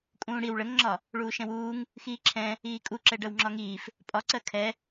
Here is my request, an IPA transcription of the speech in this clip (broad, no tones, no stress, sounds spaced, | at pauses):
kʼ ũː ɽ i w ɭ ə ŋ ŋ͡ǁ ɒ | ɭ uː ʃ ɛ̃ w uː ŋ | x iː ǁʰ ɛ̃ | iː kʼ u ǁ ɛ ɖ ɜ w ŋ͡ǁ ɒ ŋ iː f | pʼ ɒ ǀ ɜ kʰ ɛ